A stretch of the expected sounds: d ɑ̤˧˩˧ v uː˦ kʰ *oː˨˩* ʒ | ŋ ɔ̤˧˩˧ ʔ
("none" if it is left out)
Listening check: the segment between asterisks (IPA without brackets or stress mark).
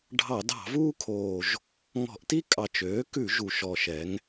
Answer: oː˨˩